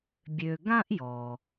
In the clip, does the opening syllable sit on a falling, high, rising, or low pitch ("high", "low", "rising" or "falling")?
low